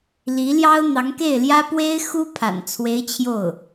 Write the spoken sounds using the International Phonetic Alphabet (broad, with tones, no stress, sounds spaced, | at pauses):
l i˧˥ l j ɑ˥ ʊ̯ n̪ ɑ˧˥ ŋ k e˥˩ ɪ̯ l j ä˥ p w e˥ ɪ̯ x u˥ pʰ a̰˨˩ n t͡sʰ w e˧˥ ɪ̯ t͡ɕʰ j o˥˩ ʊ̯